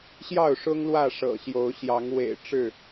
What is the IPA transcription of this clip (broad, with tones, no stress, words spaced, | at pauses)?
ɕjɑ˥˨ʊ̯ʂʊ˦ŋ lwä˥˨ʂɤ̰˨˩ɕjo˨˦ʊ̯ɕjɑ˨˦ŋ wḛ˨˩ɪ̯ ʈ͡ʂɻ̩˥˨